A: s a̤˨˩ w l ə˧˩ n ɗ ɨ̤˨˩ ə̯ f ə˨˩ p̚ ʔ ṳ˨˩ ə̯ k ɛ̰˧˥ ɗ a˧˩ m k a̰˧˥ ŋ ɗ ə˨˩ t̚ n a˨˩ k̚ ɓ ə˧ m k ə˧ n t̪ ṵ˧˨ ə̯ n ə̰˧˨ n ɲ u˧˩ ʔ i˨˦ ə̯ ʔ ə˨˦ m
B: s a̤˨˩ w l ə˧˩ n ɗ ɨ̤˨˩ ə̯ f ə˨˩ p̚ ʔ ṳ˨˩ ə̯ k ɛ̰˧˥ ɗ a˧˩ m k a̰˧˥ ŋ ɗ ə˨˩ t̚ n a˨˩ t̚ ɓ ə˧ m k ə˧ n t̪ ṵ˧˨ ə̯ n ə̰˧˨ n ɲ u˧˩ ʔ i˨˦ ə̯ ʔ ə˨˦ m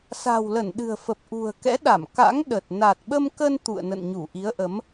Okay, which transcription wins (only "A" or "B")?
B